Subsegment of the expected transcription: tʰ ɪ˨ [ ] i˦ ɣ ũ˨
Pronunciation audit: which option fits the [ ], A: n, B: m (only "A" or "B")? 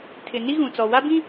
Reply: A